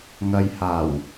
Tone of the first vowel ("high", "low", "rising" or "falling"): low